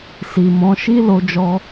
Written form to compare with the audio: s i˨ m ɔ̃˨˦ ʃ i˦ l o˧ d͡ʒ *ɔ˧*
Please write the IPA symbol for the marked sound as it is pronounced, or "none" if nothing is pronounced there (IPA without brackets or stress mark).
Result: ɔ˧